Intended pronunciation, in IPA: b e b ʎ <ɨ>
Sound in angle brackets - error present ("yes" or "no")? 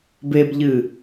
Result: no